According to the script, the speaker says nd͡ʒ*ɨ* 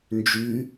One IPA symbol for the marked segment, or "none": y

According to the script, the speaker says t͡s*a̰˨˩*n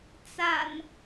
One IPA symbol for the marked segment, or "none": a̰˨˩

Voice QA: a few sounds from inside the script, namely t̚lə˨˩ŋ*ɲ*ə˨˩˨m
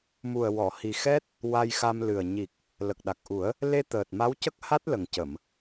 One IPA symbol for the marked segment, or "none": c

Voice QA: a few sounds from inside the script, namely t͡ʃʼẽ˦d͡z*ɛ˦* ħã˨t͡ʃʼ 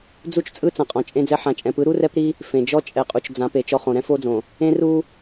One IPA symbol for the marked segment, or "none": ɛ˦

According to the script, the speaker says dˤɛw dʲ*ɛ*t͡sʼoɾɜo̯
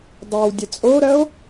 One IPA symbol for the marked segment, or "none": ɛ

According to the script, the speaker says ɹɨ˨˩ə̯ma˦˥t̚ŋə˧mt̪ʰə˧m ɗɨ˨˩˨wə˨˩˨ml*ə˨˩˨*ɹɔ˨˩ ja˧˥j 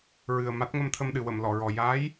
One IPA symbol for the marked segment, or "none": ɔ˨˩˨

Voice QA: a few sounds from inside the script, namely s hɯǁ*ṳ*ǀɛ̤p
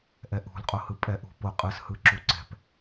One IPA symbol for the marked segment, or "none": u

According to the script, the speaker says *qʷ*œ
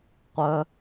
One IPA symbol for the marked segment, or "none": qʷ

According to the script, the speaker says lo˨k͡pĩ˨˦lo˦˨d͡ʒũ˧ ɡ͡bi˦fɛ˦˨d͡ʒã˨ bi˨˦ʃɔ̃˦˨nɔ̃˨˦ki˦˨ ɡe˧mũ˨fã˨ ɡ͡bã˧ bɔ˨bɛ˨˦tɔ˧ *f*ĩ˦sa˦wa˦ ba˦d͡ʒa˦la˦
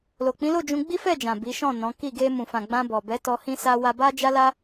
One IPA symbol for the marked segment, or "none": h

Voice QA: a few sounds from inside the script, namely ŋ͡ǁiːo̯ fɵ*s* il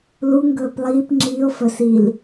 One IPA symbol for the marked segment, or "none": s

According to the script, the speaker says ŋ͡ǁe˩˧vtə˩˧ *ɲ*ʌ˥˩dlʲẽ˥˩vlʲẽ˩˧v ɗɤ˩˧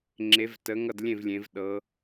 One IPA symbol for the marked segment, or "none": ŋ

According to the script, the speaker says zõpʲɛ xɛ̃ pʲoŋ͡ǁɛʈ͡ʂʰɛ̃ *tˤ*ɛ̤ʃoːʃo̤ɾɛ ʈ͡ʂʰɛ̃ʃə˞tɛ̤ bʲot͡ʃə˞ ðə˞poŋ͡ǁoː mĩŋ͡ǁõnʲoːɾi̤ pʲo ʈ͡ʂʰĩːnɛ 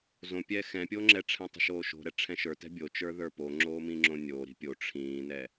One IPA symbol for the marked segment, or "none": tˤ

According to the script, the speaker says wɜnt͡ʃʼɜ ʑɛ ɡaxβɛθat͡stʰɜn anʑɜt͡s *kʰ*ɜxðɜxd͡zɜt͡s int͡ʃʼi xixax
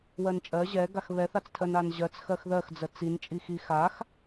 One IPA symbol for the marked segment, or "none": x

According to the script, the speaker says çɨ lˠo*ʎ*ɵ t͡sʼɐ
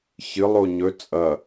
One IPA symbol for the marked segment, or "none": ɲ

